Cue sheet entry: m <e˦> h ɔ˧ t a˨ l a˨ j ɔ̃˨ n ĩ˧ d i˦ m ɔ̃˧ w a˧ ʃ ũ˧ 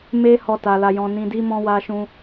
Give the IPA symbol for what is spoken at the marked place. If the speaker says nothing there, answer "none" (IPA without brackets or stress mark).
e˦